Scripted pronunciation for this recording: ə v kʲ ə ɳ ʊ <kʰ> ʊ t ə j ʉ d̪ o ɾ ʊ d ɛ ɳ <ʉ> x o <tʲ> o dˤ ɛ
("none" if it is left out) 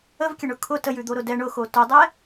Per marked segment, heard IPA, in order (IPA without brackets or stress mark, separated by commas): kʰ, ʊ, t